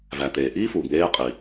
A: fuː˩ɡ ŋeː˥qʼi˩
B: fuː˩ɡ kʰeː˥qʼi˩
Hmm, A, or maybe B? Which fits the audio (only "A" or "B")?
A